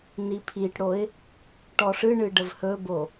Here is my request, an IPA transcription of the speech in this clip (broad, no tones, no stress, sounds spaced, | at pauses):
n i pʰ i ʈ ɽ o ɪ̯ | ʈ ɔ ʂ ɨ ɳ ɨ ɖ ə v h ɵ b o